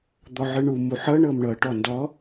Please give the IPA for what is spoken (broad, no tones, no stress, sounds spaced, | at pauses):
d̪ ɔ ʕ ɯ ɳ u m u ħ ɤ ɳ ɤ m ɳ ɤ ʈ ɔ n d ɔ